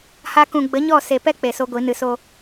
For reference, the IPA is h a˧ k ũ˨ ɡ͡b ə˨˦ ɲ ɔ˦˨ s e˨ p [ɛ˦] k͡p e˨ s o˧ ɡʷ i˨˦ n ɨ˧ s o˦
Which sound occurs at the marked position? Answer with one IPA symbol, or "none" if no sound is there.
ɛ˦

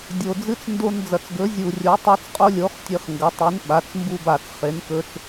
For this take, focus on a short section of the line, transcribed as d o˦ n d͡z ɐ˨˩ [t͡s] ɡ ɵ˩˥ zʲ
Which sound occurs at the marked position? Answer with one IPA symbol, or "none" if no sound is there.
t͡s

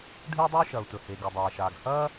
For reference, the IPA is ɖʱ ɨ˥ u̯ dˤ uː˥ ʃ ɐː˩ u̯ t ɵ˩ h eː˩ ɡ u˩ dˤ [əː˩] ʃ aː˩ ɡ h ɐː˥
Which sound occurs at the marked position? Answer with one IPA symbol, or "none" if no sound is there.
aː˩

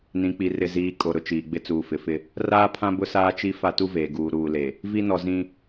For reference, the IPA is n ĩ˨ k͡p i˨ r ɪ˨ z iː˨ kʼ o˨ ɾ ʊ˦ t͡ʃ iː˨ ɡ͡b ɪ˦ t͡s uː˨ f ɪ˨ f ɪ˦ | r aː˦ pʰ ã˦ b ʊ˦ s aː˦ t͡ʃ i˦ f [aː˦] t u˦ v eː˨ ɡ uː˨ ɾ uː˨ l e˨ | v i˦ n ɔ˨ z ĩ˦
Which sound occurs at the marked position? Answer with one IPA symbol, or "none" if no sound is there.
a˦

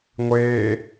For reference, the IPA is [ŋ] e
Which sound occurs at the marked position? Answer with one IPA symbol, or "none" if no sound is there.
ŋʷ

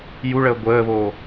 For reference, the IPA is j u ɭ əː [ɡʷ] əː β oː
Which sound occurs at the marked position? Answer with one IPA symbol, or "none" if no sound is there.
ɡʷ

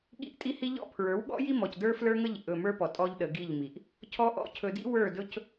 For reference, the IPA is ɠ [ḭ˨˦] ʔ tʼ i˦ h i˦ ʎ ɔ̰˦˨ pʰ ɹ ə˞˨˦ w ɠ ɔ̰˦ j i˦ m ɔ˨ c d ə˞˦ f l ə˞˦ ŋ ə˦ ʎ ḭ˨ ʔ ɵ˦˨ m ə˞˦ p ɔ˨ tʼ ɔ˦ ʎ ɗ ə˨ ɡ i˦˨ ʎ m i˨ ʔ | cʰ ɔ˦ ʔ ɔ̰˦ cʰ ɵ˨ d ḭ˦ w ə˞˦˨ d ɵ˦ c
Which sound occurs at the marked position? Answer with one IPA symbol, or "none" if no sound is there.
ḭ˦˨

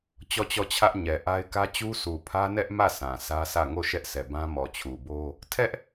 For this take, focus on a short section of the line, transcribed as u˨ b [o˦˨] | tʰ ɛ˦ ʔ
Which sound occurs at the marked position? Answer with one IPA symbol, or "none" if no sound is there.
o˦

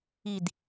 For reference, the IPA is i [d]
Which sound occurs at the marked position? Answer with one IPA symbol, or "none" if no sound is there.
d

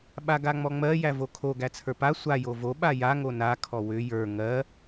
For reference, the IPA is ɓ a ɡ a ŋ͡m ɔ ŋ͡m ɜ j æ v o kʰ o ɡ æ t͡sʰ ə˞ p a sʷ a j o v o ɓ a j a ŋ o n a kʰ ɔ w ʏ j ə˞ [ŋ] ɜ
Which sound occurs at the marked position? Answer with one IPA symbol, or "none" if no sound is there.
ŋ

